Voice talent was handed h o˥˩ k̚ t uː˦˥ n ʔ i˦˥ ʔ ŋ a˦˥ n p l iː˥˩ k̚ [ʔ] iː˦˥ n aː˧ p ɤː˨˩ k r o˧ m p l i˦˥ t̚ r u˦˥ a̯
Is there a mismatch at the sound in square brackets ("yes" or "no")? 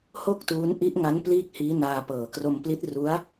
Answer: yes